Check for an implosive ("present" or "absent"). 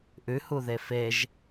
absent